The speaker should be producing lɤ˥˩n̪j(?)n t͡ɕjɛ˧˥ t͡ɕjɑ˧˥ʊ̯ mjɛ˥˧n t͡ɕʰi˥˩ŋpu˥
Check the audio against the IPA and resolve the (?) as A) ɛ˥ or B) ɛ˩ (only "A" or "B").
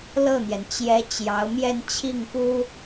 B